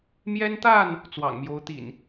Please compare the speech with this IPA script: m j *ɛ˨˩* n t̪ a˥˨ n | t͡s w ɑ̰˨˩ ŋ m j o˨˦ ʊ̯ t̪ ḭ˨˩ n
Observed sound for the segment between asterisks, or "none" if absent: ɛ˦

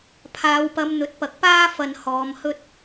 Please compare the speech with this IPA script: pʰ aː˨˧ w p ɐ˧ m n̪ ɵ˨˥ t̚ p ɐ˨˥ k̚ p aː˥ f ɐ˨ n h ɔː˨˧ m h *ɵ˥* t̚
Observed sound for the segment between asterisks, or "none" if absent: ɵ˥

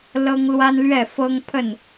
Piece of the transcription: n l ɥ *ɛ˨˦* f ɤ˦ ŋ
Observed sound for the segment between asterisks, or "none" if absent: ɛ˥˨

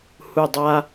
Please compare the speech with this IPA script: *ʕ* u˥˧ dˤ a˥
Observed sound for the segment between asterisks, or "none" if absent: h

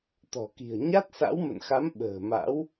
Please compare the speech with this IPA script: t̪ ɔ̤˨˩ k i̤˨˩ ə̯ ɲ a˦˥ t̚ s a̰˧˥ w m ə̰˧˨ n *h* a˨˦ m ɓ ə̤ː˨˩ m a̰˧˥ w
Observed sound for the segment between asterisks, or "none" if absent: x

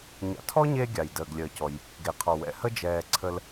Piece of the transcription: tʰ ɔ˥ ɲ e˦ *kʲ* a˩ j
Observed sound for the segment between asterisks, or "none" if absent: ɡʲ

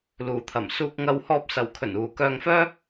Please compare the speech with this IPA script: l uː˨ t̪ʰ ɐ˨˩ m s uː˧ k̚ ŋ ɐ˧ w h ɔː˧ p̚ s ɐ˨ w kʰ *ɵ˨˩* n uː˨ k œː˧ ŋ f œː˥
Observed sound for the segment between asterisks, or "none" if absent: ɵ˨˩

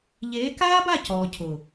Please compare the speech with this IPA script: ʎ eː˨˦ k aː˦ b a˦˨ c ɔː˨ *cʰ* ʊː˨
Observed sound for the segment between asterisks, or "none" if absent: cʰ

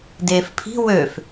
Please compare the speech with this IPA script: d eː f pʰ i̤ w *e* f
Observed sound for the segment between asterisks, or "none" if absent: ø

